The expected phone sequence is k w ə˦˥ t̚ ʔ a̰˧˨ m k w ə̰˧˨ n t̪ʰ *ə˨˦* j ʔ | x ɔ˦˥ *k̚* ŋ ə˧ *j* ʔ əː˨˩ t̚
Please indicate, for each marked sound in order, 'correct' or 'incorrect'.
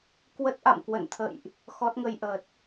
incorrect: ə̰˧˨, incorrect: t̚, correct

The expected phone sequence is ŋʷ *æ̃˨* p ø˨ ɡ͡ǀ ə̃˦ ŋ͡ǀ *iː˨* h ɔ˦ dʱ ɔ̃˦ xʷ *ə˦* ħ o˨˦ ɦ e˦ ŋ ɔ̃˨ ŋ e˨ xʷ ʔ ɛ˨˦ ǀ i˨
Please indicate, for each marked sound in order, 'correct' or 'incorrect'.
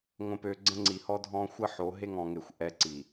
incorrect: ə̃˨, incorrect: i˨, correct

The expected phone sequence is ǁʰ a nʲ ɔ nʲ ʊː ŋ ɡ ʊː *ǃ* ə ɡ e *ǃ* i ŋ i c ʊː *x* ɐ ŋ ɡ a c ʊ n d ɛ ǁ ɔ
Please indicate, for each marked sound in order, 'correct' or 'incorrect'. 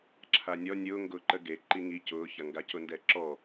correct, correct, incorrect: ç

